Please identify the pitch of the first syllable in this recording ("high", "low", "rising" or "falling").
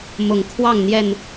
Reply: low